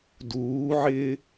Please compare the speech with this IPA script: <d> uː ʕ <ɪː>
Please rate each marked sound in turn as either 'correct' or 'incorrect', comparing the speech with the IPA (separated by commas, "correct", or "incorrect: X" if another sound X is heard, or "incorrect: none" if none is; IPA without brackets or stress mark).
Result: correct, correct